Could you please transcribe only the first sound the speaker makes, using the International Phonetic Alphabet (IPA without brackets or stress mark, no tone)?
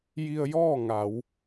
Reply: j